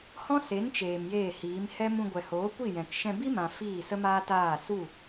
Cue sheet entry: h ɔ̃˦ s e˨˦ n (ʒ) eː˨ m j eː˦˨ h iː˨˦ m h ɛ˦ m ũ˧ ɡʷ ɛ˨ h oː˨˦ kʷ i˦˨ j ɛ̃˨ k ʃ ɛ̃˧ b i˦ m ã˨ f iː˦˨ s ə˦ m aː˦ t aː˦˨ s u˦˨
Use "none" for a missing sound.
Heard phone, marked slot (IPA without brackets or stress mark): t͡ʃ